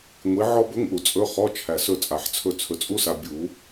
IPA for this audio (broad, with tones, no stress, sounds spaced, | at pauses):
ŋʷ i˨˥ ʕ ɔ˦˥ b ɵ˧˥˧ ŋ ʔ u˨ t͡sʼ ɵ˧˥˧ χ ɔ˧˥˧ t͡ʃʰ æ˨ s ɵ˦˨ t͡sʼ a˨˩˦ ħ t͡sʰ ɵ˦˨ t͡sʰ ɵ˨ t͡sʼ u˦˥ s a˨ bʲ u˨˩˦